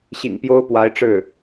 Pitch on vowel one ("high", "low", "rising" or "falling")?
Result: low